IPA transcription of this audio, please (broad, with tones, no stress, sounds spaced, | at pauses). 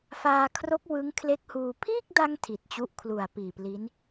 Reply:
f aː˧ kʰ r o˦˥ k̚ w ɯ˦˥ ŋ kʰ l e˦˥ k̚ h uː˧ pʰ iː˥˩ k̚ d a˧ ŋ tʰ i˨˩ t̚ t͡ɕ u˥˩ ʔ kʰ l u˨˩ a̯ p iː˨˩ p l i˦˥ n